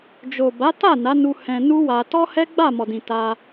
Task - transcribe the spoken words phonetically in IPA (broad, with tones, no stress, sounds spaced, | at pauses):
d͡ʒ o˨ b a˨˦ t a˦˨ n a˨˦ n u˧ h ɛ̃˧ n u˦ w a˧ t ɔ˦ h ɛ˦ ɡ͡b a˦˨ m ɔ˨ d ĩ˨ t a˧